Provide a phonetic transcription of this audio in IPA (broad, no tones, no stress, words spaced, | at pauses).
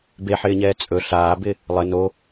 beħɪːɲɛː t͡sʼɵ ɬaːbɪ | lˠɘ no